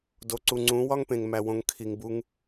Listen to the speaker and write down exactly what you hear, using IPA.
d o˨ ǀ u˨ ŋ͡ǀ ũ˨˦ w ɒ˦ ŋ p ẽ˨ ŋ m æ˨ w õ˨ ŋ kʰ i˨ ŋ b u˧ ŋ

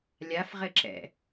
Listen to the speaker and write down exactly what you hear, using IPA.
lʲ a f ʁ ɘ ǁ ɛ̰

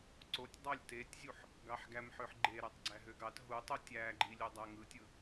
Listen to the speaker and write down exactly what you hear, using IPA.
ǀ o tʲ dˤ ɑ lʲ t e tʲ zʲ u ħ | ɡ ɑ ħ ɡ æ m ħ ø ħ ɡ͡ǃ e ɾ æ tˤ ɡ͡ǀ æ ɦ ø ɡ ɑ t ɦ u tˤ u tʲ æ ɡ͡ǃ i lʲ o dˤ æ ŋ ɯ tʲ ɯ

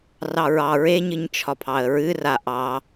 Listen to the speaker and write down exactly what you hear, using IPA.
r ɑ ɹ ɑ ɹ e ɲ ɨ ɲ t͡ʃʰ ɒ pʰ ɑ ə̯ ɹ ɨ r a ʔ ɑ

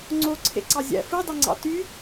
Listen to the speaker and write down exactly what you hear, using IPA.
ŋ͡ǀ o ǀʰ ḛ ǀ ɑ zʲ æ̰ f ɯ dˤ ɯ ŋ͡ǀ ɑ̰ t y

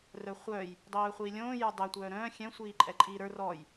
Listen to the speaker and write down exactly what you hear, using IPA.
r œ χʷ œː j | dˤ œː χʷ iː lʲ õː j ə˞ dˤ ɛ tʷ œː ɾ œ̃ː xʲ ɛ̃ sʷ iː ǃʼ ɛ ǃʼ iː ɾ ə˞ r ɔ j

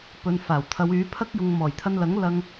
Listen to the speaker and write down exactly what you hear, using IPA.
p ɵ˨ n f aː˨˩ w t̪ʰ ɐ˨˧ w yː˨˥ pʰ ɐ˥ k̚ j ʊ˨ ŋ m ɔː˨˩ j t̪ʰ ɐ˧ n l ɐ˨˥ ŋ l ɐ˧ ŋ

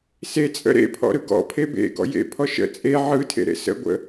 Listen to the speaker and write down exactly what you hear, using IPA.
s e t͡sʼ ə̰ ɾ ḛ pʰ ɔ̰ ɾ ɯ ɡ ɔ̰ pʰ e b ḛ ɡ ɔ̰ j ḛ pʰ ɔ ʃ ə̰ t͡sʼ e ʕ ɯ tʰ ḛ ɾ ḛ s ə̰ ɡʷ ə̰

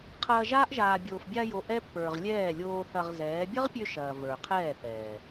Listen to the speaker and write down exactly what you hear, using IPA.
qʰ ɐː˧ ʒ aː˦ ʔ ʒ aː˨ bʲ oː˨ f bʲ a˧ j o˨ ʔ ɛ˦ pː ə˞˨ ʁ lʲ ɛː˦˨ lʲ oː˧ θ ɐ˧ ʁ z ɛː˨˦ bʲ ɐ˦ ʁ pʲ ø˧ ʃ ɐː˨ v ə˞˨ qʰ ɛː˦˨ θ ɛː˨

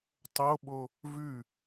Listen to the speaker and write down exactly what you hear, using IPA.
tˤ o ɓ o | v ʉ

